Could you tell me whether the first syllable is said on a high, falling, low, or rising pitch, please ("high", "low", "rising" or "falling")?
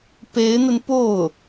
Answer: rising